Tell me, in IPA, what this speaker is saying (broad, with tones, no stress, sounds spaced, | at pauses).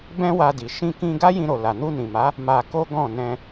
b ɛ̃˦ w a˧ d i˨ ʃ ĩ˧ k ĩ˧ ɡ a˦ j ĩ˧ ɾ o˨ l a˨ n u˧ n ĩ˨ m a˨˦ | m a˧ k o˦ ɡ ɔ̃˦˨ n ɛ̃˧